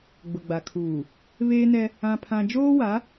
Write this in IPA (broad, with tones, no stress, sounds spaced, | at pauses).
ɡ͡b ʊ˨ ɡ͡b a˨ kʰ uː˨ | β eː˦ n ɛ˦ | ã˦ pʰ ã˦ d͡ʒ oː˦ w a˨˦